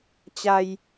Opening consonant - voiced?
no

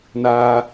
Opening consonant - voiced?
yes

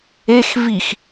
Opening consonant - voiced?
no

